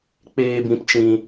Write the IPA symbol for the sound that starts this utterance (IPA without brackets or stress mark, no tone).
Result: k͡p